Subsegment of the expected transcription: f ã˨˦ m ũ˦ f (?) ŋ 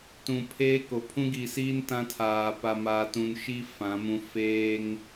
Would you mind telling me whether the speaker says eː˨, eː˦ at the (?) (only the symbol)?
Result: eː˦